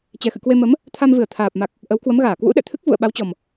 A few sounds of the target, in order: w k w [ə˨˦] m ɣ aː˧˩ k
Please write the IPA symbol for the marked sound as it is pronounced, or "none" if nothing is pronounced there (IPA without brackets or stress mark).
ə˨˦